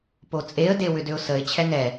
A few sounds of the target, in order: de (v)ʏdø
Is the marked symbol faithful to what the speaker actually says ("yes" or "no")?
no